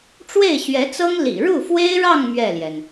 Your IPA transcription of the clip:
ʈ͡ʂwe˥˩ɪ̯ɕɥɛ˧˥t͡sɤ˥ŋ lḭ˨˩ɻu˥˩fwe˥ɪ̯ɻɑ˥˧ŋ mɥɛ˥˩ljɛ˩n

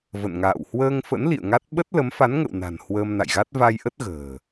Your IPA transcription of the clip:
və̰˧˨nŋa̰ː˧˨w hwəː˧ŋfə̰˧˥n lḭ˧˨ə̯ŋa˦˥t̚ ɓə˦˥t̚lə˨˦mfa˨˦nŋə̰˧˨w na̤˨˩n hwəː˧mna̰˧˨jɣa˦˥t̚ va˧jʔə˦˥t̚ ɣə̤ː˨˩

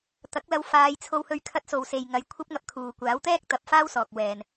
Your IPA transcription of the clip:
t̪ɐ˨˥k̚lɐ˧w faː˨˧jt͡sʰo˧whɵ˧ɥ kʰɐ˧t̚so˨wse˨jŋɐ˨˧j kʷʰɐ˥p̚ŋɐ˧p̚kʰuː˨ kʷaː˨˥wt̪ɛː˥k̚t̪ɐ˨˥p̚ faː˥wsɔː˨k̚ wɛː˨n

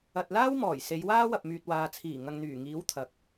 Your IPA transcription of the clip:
ɐ˨t̚ laː˥wmɔː˨˩j se˨˧jwaː˥wɐ˨p̚myː˨t̚ waː˨t͡sʰiː˨˩ ŋɐ˨ŋn̪yː˨˩ŋiː˨˥w t̪ʰɐ˨k̚

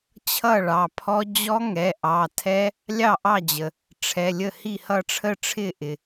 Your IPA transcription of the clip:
t͡ɕʰʌ˥˩ ɭɑ˩˧˩pʰɔ˦˥ d͡ʑɔ˦˥ŋɛ˩˧˩ ʔɑ˩˧˩tʰɛ˦˥ | lʲɑ˥˩ʔɑ˥˩d͡ʑə˩ | ʈ͡ʂʰɛ˩˧˩lʲə˥˩ hi˥˩hʌ˥˩ʈ͡ʂʰə˥˩ʈ͡ʂʰɪ˥˩ ʔɪ˩

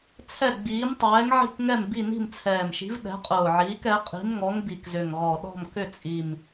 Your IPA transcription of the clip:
t͡sʰɛ˦˨ɡ͡biː˨˦m tˤɛː˨˦ŋʕi̤˦˨kŋɛ˦˨m bi˦˨ ni̤˦˨mt͡sʰɛː˨˩mʃi̤˨˦v ɗɛ̤˨˦qʼʊː˨˩ʕiː˨˦k ɛ˨˦ qʼi̤˨˦mŋɔ˨˦ŋ bi˨˩kzʏ˨˩ŋʁɔ˨˩ ɗɔ̤˦˨mkʏ˦˨t͡sʼi˨˩m

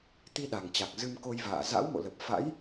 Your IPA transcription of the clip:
t̪i˧ɗa˨˩ŋt͡ɕa˨˩k̚ zɨ˧mko˧jva̰ː˧˨ za̰˧˥wmo̰˧˨lə˨˩p̚ fa̰˧˥j

